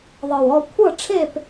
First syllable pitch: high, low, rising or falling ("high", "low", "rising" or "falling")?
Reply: low